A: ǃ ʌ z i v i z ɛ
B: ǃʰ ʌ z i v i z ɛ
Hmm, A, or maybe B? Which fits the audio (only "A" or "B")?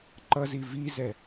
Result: A